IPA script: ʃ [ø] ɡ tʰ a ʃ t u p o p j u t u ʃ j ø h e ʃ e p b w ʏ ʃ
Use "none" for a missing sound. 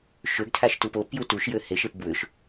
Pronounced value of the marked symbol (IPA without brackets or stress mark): ø